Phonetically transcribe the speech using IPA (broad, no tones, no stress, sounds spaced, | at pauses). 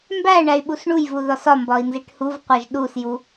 m b æ ɳ æ y̯ ɓ u s ɳ u j v u ð ɒ s ɒ m b ɒ i̯ n z i ʈ h u v qʷ æ ʒ ɗ u s j u